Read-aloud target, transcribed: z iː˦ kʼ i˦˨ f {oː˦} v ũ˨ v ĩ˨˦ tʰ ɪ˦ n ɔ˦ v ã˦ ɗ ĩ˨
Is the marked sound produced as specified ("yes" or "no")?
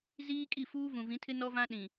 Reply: no